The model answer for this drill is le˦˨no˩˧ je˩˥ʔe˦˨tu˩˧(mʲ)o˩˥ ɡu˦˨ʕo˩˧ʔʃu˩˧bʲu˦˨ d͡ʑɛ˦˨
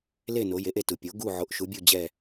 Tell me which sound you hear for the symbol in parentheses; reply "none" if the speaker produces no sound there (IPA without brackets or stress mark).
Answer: pʲ